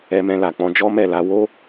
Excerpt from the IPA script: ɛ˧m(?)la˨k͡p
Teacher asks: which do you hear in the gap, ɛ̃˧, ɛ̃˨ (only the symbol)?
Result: ɛ̃˧